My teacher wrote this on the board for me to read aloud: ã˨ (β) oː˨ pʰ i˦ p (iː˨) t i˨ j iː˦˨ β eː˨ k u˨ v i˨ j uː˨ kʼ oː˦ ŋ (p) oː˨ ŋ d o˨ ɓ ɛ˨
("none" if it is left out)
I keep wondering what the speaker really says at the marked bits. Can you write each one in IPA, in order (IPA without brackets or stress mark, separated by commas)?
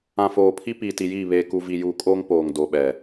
f, iː˨, p